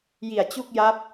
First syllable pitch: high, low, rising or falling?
low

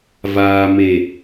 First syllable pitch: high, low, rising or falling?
low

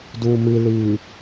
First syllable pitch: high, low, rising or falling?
low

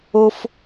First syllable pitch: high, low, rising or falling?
high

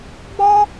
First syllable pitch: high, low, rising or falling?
high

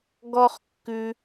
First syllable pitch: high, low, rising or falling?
high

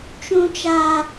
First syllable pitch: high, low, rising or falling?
high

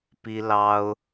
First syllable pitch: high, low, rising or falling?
high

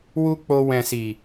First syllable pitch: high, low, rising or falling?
high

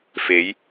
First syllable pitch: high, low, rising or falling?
rising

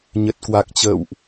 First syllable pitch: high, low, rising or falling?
low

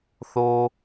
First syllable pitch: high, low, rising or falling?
high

